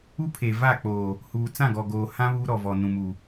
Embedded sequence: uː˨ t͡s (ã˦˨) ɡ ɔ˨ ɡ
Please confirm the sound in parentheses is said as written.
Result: yes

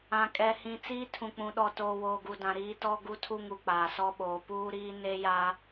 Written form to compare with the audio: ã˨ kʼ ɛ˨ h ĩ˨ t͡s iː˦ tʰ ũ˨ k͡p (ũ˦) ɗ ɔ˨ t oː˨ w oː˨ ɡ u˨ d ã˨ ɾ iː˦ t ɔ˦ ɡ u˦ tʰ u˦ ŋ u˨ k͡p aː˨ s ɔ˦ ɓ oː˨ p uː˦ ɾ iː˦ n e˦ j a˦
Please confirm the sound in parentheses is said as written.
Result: no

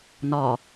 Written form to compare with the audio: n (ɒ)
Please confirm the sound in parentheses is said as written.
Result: yes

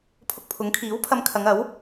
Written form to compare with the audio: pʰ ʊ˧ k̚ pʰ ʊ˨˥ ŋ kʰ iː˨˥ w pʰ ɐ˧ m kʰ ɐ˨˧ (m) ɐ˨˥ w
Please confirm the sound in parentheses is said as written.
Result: no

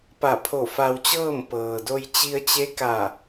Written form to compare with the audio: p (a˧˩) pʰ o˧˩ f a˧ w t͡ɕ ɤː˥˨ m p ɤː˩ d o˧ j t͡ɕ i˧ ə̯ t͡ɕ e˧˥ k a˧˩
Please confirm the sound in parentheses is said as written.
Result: yes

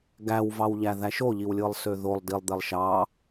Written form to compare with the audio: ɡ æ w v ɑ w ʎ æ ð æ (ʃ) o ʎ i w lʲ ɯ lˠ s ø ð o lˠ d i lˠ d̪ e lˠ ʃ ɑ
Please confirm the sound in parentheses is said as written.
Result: yes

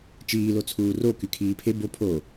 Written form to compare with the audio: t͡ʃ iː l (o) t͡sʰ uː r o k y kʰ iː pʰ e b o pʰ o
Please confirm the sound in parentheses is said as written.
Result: yes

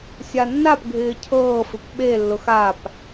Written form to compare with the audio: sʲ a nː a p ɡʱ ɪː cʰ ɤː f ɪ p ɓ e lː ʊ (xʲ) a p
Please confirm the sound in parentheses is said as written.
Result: no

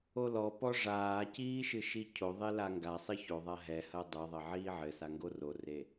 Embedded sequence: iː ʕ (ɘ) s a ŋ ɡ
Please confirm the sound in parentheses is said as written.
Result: yes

